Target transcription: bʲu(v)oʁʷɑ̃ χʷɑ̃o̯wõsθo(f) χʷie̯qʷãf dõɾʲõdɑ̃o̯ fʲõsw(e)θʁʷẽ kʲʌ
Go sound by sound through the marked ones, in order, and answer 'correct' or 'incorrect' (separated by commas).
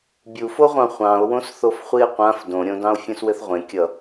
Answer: incorrect, correct, incorrect